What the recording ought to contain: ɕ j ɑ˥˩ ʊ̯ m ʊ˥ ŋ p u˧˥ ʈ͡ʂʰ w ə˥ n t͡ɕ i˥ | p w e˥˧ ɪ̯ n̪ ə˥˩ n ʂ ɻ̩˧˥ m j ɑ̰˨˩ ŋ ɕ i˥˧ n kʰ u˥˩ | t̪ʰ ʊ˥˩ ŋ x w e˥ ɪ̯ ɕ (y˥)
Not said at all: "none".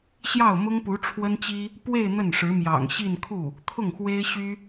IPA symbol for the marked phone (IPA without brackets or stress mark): y˥